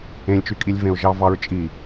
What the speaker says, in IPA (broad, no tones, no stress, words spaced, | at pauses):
ẽlʲt͡ʃykʼilʲ vẽʊ̯ʒɑvɑɹt͡ʃʼi